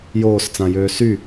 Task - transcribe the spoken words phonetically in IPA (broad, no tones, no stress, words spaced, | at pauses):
joːst͡sãjøː sy